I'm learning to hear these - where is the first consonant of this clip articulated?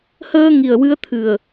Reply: throat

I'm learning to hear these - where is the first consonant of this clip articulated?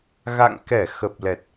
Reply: velum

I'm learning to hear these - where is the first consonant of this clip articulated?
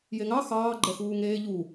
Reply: palate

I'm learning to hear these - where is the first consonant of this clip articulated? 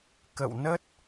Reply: velum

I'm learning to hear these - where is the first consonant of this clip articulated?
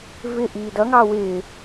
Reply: lips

